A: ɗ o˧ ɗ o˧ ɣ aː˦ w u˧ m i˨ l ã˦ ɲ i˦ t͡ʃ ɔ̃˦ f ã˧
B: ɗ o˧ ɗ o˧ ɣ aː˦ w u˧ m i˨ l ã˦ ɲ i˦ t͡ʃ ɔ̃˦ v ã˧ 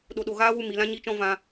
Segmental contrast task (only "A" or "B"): B